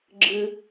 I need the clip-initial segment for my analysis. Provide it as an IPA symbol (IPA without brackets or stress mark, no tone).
ɡ͡ǁ